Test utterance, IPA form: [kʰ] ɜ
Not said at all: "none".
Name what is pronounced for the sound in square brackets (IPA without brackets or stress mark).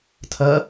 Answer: tʰ